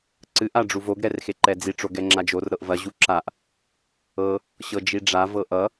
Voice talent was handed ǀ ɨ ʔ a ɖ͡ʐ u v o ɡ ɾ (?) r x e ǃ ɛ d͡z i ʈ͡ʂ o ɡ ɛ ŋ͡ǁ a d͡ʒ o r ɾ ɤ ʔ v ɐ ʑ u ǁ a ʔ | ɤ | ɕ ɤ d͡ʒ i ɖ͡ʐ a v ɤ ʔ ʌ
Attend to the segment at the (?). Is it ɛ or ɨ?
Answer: ɛ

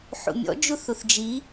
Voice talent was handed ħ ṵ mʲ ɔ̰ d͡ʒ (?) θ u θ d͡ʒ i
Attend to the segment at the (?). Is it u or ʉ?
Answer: u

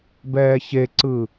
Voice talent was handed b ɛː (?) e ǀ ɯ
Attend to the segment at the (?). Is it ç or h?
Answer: ç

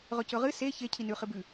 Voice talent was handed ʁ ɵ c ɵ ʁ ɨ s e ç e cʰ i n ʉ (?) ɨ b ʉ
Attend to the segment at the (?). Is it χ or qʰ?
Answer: χ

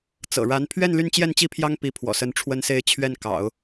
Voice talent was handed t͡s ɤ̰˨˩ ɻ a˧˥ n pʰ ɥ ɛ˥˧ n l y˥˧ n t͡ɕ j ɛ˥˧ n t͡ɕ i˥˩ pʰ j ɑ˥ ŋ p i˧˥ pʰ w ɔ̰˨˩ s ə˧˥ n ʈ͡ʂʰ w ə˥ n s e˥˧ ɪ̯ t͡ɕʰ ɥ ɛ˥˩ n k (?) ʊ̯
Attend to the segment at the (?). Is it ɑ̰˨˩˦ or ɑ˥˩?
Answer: ɑ̰˨˩˦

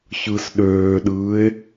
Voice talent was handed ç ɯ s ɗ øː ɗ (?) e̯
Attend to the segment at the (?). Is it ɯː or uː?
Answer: ɯː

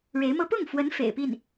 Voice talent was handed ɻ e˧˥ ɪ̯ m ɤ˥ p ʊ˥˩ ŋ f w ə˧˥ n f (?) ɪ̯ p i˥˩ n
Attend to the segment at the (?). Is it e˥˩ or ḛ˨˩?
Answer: ḛ˨˩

